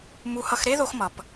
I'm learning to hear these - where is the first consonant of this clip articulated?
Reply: lips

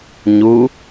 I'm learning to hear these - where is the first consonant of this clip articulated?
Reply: palate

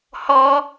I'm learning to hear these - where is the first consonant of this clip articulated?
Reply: throat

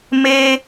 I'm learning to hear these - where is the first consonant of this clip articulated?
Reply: lips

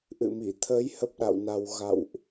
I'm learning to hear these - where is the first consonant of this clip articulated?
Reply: throat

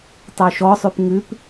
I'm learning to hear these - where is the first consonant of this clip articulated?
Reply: tongue tip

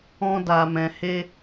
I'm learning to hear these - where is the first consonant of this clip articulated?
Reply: tongue tip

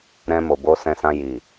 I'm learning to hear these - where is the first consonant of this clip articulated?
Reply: tongue tip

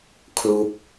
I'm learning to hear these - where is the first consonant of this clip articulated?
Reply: velum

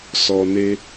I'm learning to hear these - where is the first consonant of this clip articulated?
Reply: tongue tip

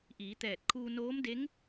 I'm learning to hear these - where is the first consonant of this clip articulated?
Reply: throat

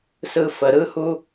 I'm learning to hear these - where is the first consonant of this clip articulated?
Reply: tongue tip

